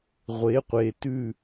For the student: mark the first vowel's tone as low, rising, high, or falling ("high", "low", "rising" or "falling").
rising